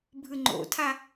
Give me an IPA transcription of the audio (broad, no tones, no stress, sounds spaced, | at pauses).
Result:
bʱ ɯ ŋ͡ǃ o̰ tʰ a